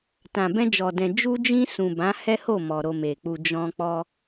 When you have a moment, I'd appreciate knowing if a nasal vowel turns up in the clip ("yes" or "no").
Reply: yes